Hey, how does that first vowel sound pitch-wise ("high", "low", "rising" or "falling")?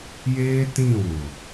high